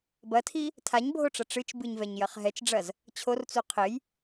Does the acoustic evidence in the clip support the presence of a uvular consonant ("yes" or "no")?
yes